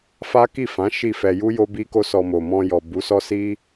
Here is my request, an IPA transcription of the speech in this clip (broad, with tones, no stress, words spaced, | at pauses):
fa˦ki˦˨fã˨˦ ʃi˦˨fɛ˧ ju˦jo˦ bi˦ko˦sɔ˧mo˨ mɔ̃˧jɔ˨ bu˨˦sɔ˦si˦